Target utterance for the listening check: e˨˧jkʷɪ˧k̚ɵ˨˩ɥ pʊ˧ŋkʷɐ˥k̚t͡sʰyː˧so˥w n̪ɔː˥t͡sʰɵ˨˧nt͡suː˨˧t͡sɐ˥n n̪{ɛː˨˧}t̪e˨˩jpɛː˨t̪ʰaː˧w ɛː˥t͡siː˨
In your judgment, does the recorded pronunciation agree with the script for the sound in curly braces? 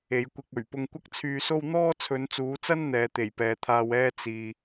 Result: yes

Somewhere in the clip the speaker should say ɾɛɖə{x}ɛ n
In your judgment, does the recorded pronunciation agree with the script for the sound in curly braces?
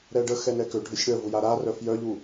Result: yes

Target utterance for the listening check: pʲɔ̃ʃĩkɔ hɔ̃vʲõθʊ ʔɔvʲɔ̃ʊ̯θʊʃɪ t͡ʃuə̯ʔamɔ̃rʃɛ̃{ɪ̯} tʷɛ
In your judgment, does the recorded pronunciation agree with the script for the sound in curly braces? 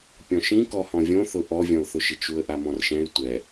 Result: yes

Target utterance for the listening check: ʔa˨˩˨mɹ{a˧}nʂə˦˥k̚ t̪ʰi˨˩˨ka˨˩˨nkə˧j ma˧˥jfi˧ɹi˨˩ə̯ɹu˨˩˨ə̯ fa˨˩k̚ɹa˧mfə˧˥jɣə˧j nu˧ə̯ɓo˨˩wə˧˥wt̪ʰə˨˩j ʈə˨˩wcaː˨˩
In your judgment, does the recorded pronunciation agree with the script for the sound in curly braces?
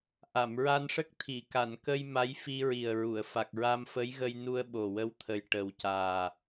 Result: yes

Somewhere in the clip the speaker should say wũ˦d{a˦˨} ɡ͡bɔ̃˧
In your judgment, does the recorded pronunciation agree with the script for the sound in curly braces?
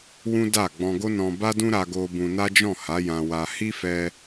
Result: yes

